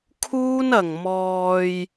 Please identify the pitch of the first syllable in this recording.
high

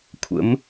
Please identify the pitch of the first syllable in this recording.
rising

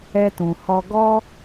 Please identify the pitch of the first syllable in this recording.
high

